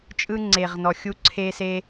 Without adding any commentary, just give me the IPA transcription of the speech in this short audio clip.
t͡ʃʼɯ˦ŋ͡ǀe˨ʁnɔ˨ xʲu˧ǀʰe˧se˧

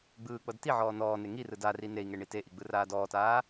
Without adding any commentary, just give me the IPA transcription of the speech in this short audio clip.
ɡ͡bɯː k͡pɤdtiʕɔː nɔːne ŋirɯ dari nei̯ŋe ɳiteʔi ɡ͡bɯraːdɔːtaː

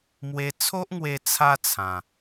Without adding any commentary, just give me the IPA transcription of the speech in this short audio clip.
mwe˧t͡sʰo˦ʔŋwe˧ t͡sʰa˦t͡sʰã˨˩

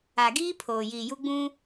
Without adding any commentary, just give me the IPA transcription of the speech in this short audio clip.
a˨ɡiː˦ pʰoː˨jiː˨ju˦ ɡ͡bũ˦

